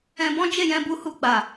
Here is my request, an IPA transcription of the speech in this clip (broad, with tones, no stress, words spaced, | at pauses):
ɛ̃˧bɔ̃˦ d͡ʒe˦˨jɛ̃˧bu˧hu˧ ɡ͡ba˨